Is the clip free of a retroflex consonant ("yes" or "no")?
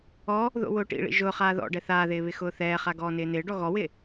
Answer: no